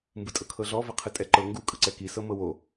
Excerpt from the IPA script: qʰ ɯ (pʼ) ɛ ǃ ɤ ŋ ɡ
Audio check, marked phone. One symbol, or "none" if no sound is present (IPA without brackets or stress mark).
tʼ